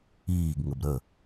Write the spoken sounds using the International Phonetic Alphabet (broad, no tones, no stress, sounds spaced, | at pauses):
iː ɡ ŋ ə b ɾ ə